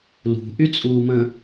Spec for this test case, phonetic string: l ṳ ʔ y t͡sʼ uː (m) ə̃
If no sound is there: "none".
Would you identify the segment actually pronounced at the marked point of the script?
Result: m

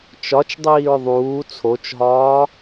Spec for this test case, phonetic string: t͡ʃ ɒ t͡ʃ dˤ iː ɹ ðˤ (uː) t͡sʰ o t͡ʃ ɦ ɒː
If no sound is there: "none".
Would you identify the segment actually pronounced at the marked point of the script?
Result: uː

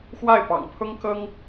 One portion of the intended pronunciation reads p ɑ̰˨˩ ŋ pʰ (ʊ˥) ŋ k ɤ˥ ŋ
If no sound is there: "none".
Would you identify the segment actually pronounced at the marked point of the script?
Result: ʊ˥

